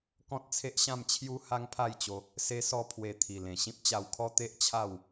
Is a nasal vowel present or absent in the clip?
present